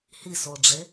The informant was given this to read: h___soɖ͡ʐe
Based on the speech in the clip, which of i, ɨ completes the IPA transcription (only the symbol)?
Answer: i